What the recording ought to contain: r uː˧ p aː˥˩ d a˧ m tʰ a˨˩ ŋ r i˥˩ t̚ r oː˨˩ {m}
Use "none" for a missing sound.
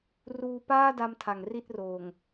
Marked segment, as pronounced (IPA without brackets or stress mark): ŋ